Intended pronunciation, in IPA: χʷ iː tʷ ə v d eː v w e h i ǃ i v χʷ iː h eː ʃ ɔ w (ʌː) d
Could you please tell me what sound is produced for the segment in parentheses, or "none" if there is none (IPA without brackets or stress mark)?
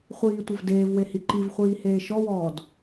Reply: ɔː